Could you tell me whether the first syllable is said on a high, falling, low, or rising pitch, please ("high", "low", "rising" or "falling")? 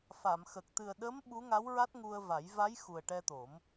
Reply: low